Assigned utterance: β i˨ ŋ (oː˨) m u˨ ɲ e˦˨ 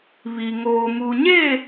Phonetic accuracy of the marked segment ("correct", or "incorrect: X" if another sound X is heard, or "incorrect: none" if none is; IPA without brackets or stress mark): correct